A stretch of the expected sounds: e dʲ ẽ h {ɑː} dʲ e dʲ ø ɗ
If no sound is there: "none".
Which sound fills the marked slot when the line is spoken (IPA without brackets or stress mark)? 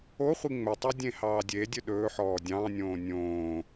ɑː